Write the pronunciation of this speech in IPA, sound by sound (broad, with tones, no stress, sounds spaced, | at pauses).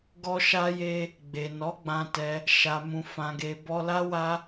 ɡ ɔ˧ ʃ a˧ j e˧ | ɡ͡b e˨ n ɔ˨˦ ɡ͡b ã˧ t ɛ˧ | ʃ a˨ m ũ˨ f ã˨ ɡ e˨ b ɔ˧ l a˦ w a˦